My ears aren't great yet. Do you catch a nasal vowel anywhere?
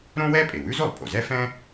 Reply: yes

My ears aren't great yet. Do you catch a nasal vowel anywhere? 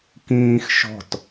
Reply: yes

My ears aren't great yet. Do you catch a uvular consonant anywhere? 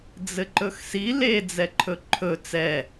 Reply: no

